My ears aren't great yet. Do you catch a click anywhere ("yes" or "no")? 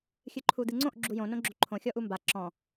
yes